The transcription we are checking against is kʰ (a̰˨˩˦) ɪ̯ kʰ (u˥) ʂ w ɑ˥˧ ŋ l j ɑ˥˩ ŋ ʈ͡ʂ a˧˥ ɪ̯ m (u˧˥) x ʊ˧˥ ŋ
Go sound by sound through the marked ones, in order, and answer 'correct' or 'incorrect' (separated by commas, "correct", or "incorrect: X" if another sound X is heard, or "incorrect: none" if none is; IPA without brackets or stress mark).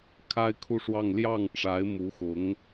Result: incorrect: a˥, incorrect: u˥˧, correct